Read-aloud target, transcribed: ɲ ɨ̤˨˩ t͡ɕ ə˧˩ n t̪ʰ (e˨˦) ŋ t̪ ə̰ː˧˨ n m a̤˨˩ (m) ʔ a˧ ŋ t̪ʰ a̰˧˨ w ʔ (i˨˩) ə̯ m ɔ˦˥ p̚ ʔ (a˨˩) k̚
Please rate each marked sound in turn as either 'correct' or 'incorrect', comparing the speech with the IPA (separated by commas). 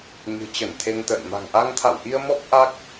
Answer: incorrect, incorrect, incorrect, incorrect